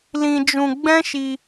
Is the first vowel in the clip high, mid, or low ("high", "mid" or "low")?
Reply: high